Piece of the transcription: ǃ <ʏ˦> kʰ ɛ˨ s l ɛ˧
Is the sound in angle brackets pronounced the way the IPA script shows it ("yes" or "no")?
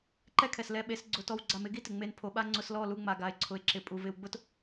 no